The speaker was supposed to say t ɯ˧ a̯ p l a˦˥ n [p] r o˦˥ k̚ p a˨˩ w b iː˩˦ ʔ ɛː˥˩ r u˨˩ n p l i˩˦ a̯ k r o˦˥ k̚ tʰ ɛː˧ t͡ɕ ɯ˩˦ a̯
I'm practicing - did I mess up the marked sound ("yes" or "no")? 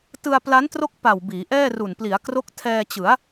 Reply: yes